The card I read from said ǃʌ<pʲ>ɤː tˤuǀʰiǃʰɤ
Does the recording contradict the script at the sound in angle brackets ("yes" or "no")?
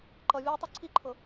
yes